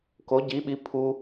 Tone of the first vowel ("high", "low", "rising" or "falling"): rising